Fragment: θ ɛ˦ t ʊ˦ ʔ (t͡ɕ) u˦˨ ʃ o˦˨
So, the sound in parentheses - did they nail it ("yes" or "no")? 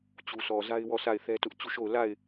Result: yes